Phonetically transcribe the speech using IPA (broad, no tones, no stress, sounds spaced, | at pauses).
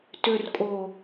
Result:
t ʏ r kʼ o